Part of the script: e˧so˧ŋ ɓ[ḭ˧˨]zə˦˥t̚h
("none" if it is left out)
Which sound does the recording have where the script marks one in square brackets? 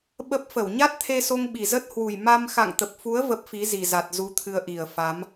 i˨˩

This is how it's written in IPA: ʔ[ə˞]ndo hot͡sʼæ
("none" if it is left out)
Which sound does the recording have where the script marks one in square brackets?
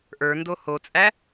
ə˞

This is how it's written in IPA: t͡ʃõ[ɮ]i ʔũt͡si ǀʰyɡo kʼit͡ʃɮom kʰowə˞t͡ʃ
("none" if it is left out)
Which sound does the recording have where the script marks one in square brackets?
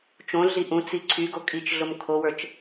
ɮ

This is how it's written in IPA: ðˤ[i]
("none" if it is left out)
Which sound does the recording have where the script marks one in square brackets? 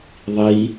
i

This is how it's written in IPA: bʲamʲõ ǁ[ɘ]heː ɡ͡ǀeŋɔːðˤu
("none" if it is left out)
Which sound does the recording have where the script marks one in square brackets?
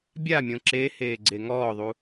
e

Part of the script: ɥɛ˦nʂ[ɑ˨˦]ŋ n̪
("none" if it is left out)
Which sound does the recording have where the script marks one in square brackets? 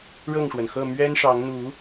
ɑ˨˦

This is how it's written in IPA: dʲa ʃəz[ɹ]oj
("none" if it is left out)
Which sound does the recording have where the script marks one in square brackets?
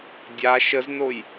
n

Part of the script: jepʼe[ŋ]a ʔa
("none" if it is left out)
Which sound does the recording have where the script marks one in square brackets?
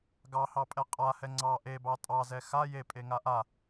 ŋ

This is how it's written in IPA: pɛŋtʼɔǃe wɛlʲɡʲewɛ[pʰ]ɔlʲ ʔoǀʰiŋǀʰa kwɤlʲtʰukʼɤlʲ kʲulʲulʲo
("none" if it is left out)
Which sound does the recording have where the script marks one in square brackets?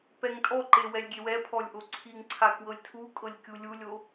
pʰ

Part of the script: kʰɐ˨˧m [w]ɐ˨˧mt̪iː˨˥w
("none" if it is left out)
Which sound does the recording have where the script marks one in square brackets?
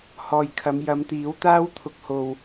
j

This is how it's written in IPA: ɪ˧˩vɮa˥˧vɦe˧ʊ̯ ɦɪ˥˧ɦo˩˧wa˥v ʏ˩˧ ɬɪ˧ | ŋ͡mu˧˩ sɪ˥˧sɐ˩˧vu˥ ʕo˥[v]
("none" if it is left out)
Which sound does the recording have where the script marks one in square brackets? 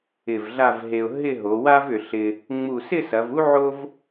v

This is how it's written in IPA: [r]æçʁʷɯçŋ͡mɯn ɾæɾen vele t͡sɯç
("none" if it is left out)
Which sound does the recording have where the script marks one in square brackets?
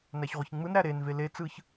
n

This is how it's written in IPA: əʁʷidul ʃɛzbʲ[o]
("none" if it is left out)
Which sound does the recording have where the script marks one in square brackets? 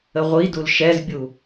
u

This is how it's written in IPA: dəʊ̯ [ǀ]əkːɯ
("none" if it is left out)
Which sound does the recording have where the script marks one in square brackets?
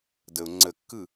ŋ͡ǀ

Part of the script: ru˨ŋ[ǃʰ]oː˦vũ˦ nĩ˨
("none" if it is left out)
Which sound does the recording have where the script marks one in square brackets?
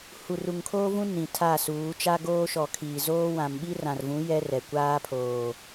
kʰ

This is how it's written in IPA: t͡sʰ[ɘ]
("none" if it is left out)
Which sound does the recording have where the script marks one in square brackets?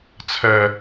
ɛ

